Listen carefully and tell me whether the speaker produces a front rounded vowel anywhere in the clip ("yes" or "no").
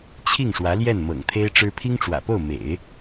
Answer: no